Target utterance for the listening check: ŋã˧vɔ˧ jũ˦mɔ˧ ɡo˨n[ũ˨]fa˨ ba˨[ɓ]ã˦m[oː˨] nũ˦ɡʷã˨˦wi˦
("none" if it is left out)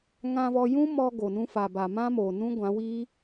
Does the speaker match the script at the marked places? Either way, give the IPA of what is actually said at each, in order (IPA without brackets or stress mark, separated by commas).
ũ˧, m, oː˨